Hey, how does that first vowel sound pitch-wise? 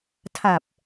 low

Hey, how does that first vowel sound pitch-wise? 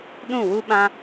falling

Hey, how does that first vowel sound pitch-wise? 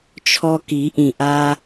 high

